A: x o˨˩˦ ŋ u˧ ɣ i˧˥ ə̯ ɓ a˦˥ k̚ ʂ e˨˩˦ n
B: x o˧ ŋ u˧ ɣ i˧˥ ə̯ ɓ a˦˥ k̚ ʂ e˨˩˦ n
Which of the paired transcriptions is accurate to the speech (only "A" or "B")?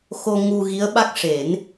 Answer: B